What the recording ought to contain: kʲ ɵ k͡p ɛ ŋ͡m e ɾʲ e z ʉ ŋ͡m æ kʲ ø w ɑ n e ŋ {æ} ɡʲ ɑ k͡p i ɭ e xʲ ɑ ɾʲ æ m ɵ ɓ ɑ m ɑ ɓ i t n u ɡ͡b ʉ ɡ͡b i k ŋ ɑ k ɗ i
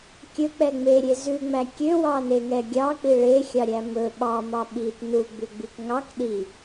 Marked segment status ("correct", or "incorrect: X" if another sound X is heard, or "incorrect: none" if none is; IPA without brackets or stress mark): incorrect: ɛ